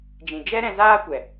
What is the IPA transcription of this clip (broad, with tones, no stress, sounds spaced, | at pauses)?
d͡ʒ ĩ˨ d͡ʒ ɛ˦ ɾ ɛ̃˧ z aː˦ kʷ ɛ˨